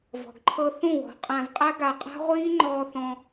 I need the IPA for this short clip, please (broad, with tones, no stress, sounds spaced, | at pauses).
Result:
v ɔ̤˨ ɡ ǃʰ ɤ˧ θ ũ˦˨ w ɔ̤˨˦ qʼ æ̃˧ v qʼ æ˦ ɡ a˧ qʼ a̤˦ ʁʷ iː˦ ŋ͡ǃ ɔː˧ θ ɔ̃˧